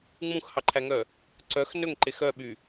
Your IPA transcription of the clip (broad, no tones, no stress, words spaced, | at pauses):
ŋ͡mũxhɑǃʰæŋœ | ǀœx nɵŋǃex œɓy